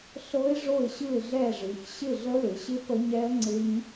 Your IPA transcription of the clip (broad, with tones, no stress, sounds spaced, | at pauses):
ɬ ɤ˦˥ ɪ̯ ʐ o˥˨ ɪ̯ ɕ ɯ˥˨ ɪ̯ ɮ ɛ˥˨ ʐ ɯ˩˧ ç ɕ ɪ˥˨ ɮ ə˦˥ l ɪ˩˧ ɕ ɪ˦˥ p ə˦˥ ɲ ɛ˦˥ ə̯ ŋ͡ǀ ɪ˦˥ ɲ